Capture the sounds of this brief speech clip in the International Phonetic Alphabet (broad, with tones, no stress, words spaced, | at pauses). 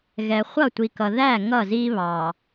ɣɛ˨ χʷʌ˦˨tʷi˨kʌ˨ ðæ˦˨ ŋʌ˦˨zi˦ βɑ˨